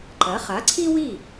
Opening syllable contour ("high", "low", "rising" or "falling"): rising